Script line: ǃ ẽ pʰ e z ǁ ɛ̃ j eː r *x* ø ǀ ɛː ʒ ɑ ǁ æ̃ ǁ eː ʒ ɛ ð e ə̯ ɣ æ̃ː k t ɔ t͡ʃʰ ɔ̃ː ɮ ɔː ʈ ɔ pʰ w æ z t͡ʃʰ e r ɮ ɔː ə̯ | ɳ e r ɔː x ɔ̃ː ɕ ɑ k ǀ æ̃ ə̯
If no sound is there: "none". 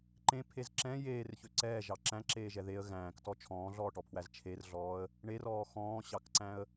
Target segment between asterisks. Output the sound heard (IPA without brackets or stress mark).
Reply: ç